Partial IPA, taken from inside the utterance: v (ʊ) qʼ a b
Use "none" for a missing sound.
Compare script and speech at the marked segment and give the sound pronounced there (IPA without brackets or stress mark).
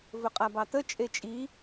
ɵ